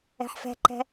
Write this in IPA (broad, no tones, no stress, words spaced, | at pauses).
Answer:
ɛ̤ħfɛ̤ǃɛ̤